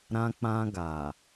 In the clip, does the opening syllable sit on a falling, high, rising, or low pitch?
high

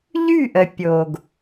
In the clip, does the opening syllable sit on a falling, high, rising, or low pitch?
falling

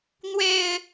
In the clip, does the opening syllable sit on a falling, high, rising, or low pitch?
low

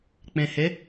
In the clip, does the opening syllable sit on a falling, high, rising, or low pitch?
low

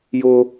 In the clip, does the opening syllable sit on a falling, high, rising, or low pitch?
high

